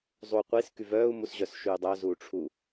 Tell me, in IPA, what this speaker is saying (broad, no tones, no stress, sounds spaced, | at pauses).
zˤ u qʷ i s k y v œː u̯ m u s ʑ œ s ʃ yː dˤ œ z uː ʈ͡ʂʰ u